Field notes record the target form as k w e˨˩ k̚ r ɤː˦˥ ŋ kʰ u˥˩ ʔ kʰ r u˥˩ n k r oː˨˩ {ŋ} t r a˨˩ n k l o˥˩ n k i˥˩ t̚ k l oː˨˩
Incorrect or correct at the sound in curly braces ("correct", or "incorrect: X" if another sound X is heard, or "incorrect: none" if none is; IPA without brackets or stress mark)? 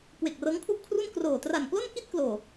incorrect: none